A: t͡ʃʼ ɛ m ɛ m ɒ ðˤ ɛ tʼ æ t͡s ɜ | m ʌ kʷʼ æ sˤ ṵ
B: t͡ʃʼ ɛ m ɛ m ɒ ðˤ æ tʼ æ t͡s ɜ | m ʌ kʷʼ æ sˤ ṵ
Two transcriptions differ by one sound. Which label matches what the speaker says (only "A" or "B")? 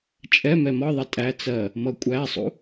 A